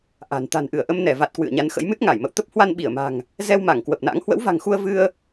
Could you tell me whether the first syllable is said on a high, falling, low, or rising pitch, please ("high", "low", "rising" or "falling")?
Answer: low